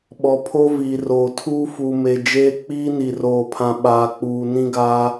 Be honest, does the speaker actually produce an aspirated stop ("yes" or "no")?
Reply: yes